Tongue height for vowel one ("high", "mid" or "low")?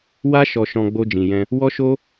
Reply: low